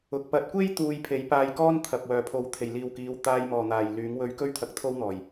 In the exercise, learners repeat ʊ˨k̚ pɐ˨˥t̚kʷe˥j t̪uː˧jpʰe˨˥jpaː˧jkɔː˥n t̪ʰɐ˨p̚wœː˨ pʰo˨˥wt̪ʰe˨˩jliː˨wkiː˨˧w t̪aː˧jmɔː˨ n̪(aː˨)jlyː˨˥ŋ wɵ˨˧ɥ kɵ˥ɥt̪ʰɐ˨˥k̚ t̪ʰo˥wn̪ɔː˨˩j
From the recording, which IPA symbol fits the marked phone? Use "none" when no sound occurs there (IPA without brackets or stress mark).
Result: aː˨